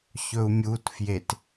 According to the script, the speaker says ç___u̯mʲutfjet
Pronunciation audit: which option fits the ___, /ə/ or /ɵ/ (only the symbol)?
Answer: ɵ